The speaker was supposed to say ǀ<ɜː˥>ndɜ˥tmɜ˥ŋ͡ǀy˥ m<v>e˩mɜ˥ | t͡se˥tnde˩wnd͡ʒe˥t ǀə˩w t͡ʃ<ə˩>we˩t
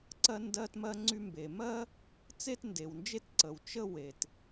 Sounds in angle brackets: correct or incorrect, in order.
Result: incorrect: ɜ˥, incorrect: b, incorrect: ə˥

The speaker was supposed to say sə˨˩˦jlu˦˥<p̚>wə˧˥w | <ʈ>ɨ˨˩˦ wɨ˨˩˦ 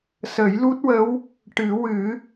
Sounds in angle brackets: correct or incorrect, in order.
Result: incorrect: t̚, correct

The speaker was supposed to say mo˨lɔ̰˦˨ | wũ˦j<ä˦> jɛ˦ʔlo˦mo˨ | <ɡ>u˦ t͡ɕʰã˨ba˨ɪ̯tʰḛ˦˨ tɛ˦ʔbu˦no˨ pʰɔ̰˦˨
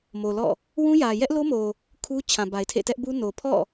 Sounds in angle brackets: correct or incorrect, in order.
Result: incorrect: ä˨, incorrect: kʰ

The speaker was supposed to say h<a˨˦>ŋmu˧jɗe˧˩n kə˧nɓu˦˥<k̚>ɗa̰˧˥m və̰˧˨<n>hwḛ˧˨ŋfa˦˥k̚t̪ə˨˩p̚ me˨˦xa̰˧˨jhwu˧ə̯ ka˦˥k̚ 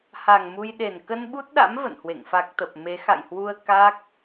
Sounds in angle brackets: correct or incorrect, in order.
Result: incorrect: a˧˩, incorrect: t̚, correct

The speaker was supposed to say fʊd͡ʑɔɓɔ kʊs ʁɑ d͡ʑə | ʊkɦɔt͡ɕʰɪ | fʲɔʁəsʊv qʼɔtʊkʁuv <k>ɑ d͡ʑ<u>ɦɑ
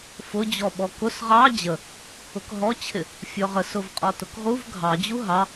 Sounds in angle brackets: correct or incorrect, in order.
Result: incorrect: ɡʱ, correct

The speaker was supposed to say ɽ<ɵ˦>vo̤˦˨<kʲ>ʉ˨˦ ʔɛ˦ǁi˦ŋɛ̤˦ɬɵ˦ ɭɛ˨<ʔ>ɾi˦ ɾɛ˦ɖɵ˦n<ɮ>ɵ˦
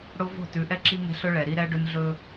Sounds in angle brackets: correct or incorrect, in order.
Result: incorrect: o˦, incorrect: t, incorrect: none, correct

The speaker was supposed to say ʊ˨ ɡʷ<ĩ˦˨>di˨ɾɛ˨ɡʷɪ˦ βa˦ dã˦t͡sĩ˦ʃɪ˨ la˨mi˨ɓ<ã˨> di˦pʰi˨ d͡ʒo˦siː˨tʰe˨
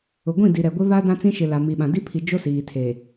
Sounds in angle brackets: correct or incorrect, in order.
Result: correct, correct

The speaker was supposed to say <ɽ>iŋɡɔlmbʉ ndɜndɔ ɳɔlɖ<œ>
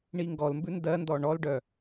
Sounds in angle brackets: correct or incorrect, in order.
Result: incorrect: ɳ, correct

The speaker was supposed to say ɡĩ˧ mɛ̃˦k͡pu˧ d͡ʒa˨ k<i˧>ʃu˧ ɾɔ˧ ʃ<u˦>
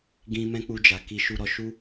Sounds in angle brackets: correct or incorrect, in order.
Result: correct, correct

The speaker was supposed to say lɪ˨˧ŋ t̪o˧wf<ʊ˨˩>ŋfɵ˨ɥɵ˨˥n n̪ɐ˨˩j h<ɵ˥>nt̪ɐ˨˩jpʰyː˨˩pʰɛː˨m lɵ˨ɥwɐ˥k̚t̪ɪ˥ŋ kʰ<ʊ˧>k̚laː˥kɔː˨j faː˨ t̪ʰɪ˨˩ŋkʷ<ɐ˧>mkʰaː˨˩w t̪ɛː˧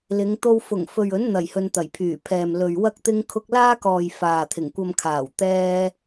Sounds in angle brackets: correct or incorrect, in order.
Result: correct, incorrect: ɵ˧, correct, correct

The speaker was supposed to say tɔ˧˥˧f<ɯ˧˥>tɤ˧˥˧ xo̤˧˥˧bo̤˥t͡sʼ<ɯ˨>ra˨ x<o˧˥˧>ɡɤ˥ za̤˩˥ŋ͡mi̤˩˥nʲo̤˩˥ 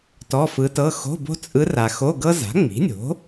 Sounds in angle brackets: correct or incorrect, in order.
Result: correct, incorrect: ɯ˧˥, correct

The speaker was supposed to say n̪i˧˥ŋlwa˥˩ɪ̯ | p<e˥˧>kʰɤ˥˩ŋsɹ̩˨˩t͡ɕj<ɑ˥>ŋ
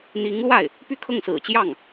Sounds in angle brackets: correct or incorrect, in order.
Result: incorrect: y˥˧, incorrect: ɑ˥˩

